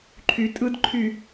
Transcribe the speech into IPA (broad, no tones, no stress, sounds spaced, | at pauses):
ǃʰ y tʼ ɯ d ǃʰ y